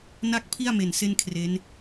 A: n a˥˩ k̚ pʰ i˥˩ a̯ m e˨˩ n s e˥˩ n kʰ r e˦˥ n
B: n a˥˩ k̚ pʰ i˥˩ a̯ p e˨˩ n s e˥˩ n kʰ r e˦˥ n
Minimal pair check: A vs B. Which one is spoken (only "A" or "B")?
A